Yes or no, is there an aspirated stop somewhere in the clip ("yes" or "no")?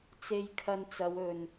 yes